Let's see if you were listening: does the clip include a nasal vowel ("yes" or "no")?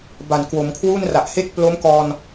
no